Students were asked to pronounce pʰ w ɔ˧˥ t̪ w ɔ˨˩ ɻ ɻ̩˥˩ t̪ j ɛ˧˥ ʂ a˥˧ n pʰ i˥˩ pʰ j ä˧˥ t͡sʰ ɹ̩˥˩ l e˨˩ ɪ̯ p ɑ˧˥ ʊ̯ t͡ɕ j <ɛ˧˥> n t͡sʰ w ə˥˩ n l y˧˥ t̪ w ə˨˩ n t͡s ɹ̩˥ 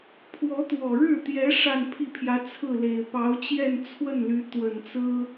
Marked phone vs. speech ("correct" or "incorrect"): incorrect